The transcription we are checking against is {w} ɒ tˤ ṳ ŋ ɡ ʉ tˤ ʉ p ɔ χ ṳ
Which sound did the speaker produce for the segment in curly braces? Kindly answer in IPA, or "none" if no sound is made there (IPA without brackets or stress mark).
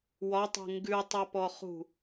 w